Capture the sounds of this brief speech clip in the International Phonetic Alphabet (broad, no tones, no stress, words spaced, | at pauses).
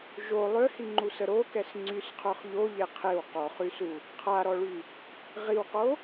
ʒo lˠøhiŋ͡ǃusə ɾokɛs ŋ͡ǀysqʰœχ ʎoʎe qʰew qɔχysu | qʰaɾɔɭy | ʁiwqo